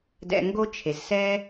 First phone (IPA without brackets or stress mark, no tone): d